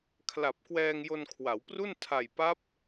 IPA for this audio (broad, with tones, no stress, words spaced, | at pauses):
kʰla˨˩p̚kwɛː˧ŋ jo˧nkʰwa˩˦wpru˥˩n tʰa˨˩jpa˦˥p̚